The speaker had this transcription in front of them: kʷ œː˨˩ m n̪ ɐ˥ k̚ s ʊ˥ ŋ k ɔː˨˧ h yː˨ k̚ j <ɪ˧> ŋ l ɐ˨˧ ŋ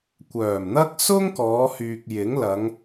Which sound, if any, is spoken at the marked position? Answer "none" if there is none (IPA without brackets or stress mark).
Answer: ɪ˨˥